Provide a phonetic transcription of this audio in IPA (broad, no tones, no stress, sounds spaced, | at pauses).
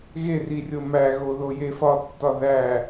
ɣ e r i rʲ o m æ ɣ o ð o j e f ɒ tː ɒ ð æ